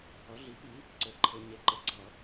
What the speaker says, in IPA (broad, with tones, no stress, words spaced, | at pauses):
ʌ˩˥ɮi˩˥pi˩˥ | ǀɘ˨˩˦ǃʰɘ˨˩˦ ɲe˩˥ ǃɘ˩˥ ɡ͡ǀʌ˨˩˦